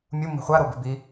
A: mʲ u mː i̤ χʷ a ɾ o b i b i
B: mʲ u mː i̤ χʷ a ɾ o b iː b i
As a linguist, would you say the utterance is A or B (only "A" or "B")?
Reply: A